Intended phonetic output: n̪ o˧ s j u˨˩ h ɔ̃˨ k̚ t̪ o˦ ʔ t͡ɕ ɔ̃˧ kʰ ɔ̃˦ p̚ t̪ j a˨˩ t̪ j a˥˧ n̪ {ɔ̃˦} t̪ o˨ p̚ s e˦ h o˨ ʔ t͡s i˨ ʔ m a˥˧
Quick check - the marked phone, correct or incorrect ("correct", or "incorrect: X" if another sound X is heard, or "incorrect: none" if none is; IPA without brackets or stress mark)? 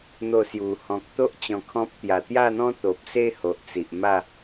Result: correct